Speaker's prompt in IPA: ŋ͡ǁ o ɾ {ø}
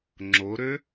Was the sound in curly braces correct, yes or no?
yes